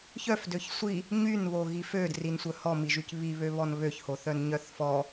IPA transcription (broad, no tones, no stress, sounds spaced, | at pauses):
ç œ f d ø ç sʷ i | ɲ y n β o ɣ i f ø d r i n sʷ œ h ɔ m i ʒ y c β i β ø β ɔ n β ø ç h o θ œ n ɲ œ θ f ɔ